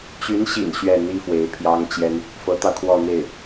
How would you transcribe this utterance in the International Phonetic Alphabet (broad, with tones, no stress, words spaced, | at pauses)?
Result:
t͡ɕy˧˥nɕḭ˨˩n ɕɥɛ˥˩n̪i˥fwe˧˥ɪ̯ pʰjɑ˥ŋt͡ɕjɛ˥n | fɤ˧˥t̪ɑ˧ʊ̯kʰwɔ˥˧n̪e˥˩ɪ̯